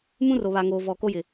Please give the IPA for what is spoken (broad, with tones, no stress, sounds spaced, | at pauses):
m ũ˦ r o˨ β a˨ ŋ oː˨ v ɔ˨ k o˦ j ɪ˨